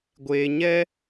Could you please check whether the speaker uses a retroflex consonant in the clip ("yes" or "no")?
no